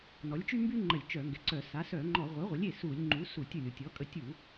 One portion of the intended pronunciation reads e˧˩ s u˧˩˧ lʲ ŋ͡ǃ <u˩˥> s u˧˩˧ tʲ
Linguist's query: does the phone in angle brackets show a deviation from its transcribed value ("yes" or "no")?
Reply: no